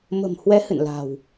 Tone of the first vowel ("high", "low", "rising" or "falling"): low